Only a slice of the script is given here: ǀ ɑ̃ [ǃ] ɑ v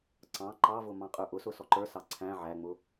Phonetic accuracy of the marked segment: correct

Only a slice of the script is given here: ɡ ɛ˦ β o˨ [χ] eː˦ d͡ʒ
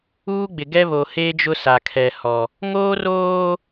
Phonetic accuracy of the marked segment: incorrect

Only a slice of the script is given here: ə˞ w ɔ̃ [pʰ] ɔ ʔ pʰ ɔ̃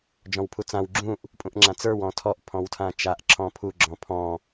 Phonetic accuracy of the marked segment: incorrect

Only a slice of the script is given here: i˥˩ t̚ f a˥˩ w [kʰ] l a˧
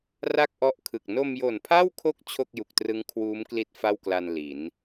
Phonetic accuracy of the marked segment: incorrect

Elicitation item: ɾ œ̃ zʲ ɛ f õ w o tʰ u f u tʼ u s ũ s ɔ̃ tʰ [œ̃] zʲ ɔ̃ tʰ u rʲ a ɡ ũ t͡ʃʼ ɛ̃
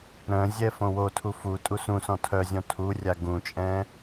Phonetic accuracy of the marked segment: incorrect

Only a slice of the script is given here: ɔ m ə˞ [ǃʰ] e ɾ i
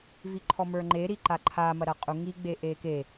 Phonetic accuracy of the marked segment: incorrect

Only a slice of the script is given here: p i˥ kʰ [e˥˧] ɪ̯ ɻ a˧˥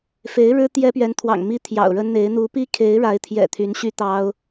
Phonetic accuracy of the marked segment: incorrect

